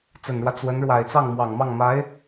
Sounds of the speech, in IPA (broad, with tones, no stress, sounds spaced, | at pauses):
t͡s ə˨˩ n ɻ w ä˦ t͡s w ə˧˥ n ɻ w a˨˩ ɪ̯ t͡s ɑ˥˩ ŋ m w ɑ˨˩ ŋ m ɑ˥˩ ŋ m a˧˥ ɪ̯